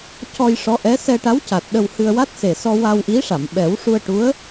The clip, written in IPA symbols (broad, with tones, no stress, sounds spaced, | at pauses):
c ɔ˧ j ʂ ɔ˧˥ ʔ ɛ˧˥ s ɛ˧ ʈ a˧˥ w c a˨˩ t̚ ɗ ə˧ w h ɨ˧ ə̯ w a˦˥ t̚ s e˨˩ s ɔ˧ w a˧ w ʔ i˧˥ ʂ a˨˩˨ m ɓ ɛ˨˩˦ w ʂ u˧ ə̯ ʈ u˧˥ ə̯